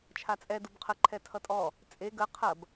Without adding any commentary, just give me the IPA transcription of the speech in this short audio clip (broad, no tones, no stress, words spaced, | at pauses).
t͡ʃʰat͡sʼɛ dubqʰə ǃʰɛtʰʌtʼɔ | t͡sʼe ɡə qʰɐb